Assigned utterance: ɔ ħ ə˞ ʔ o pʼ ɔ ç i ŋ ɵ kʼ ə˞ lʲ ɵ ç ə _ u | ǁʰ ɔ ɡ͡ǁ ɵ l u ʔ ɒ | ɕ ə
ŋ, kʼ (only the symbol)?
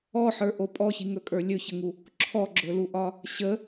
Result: ŋ